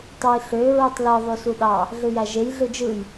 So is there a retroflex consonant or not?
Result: no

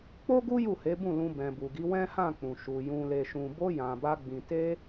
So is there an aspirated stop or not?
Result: no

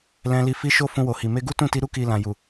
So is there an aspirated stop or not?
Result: no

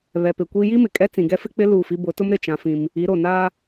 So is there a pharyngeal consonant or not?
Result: no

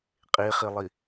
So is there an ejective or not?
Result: yes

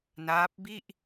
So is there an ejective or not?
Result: no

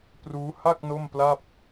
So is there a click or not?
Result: no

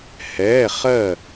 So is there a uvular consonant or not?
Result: yes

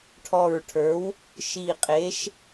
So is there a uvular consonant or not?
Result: yes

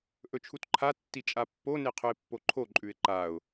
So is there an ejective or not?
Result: yes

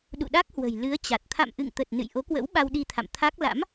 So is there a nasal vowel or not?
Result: no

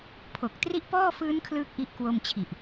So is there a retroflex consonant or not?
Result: no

